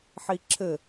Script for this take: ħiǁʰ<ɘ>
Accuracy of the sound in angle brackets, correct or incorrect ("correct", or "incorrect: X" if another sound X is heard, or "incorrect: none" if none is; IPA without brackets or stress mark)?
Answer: correct